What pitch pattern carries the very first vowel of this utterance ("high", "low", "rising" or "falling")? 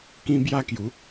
high